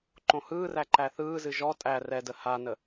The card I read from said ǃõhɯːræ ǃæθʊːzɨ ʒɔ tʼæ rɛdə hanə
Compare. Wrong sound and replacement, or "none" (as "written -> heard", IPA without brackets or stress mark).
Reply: ʊː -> ɯː